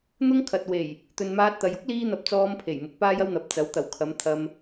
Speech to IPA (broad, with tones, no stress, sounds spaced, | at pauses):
n̪ ʊ˥ ŋ kʰ ɐ˨ t̚ w e˨˩ j | t̪ ɵ˨ n m aː˧ t̚ t̪ ɐ˨ j ʊ˥ k̚ l iː˧ n̪ ɐ˨ p̚ t͡s ɔː˧ m pʰ e˨˩ j m ʊ˨˥ k̚ p aː˥ j ɐ˥ w n̪ ɐ˨˥ p̚ t͡s ɐ˨˥ w t̪ ɐ˨˩ w kʰ ɐ˨˧ m t̪ʰ ɐ˧ m